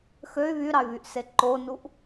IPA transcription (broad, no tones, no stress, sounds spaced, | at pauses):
x ø y̯ β y ɾ ɑ y̯ β y ʔ s e ǃ o n u ʔ